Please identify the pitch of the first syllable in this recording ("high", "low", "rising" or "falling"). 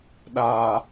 low